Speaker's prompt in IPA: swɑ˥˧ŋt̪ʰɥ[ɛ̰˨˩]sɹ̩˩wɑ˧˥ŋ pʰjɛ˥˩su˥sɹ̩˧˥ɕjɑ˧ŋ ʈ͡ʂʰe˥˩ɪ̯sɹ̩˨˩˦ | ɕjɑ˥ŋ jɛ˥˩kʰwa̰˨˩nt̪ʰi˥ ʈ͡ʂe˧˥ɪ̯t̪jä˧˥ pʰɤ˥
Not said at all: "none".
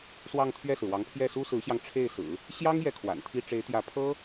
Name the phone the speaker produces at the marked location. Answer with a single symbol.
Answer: ɛ˥˩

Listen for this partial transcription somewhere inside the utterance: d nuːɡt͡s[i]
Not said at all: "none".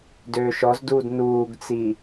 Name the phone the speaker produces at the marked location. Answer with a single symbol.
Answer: i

